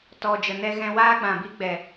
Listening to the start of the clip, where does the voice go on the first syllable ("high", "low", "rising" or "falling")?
low